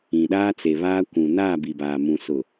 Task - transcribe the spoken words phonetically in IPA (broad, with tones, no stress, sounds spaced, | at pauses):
ĩ˨ ɗ aː˦ t͡s e˨ β aː˦ kʷ ũ˨ n aː˦˨ b i˨ b aː˨ m ũ˨ s ʊ˨